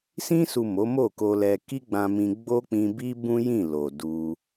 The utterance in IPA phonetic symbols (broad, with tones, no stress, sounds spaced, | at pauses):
s ĩ˧ s u˨ m o˨˦ m o˦˨ k o˧ l ɛ˧ k i˦ ɡ͡b ã˧ m ĩ˧ ɡ͡b o˦ k͡p ĩ˧ b i˦ b ũ˦ j ĩ˦˨ l o˨ d u˧